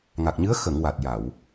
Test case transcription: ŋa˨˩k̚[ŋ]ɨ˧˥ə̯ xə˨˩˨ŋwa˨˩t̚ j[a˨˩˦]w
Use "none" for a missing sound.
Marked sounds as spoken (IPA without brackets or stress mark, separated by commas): ɲ, a˨˩˨